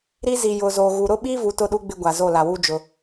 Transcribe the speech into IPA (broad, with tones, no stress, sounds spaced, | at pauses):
ɾ i˦ z i˨ j ʊ˨ z o˨ ɣ u˨ ɾ ʊ˦ ɓ i˦ v u˨ t ʊ˦ ɗ u˦ ɡ͡b ɪ˦ ɡʷ a˨ z o˦˨ l a˨ w u˦ d͡ʒ ʊ˨